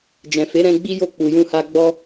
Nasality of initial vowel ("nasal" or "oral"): nasal